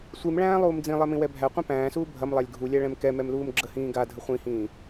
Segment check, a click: present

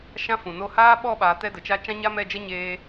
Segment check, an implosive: present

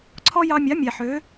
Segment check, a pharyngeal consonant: present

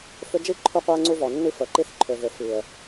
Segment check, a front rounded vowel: present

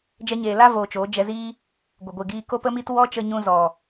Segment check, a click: absent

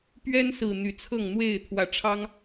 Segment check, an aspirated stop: present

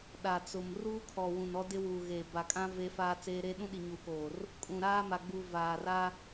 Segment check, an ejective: present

